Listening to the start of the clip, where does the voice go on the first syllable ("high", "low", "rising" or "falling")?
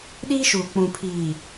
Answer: high